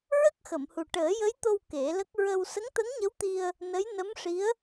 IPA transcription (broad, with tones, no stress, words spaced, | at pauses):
ɹə˦˥k̚xə˨˩˨mhu˨˩ ʈəː˨˩˦jə˧˥jt̪o˧w ke˨˩˦lə˦˥k̚ ɹə˧w sə˧˥ŋt̪ə˧˥ŋɲə˧˥wt̪i˧ə̯ | nə˧˥jnə˧˥mʂi˧˥ə̯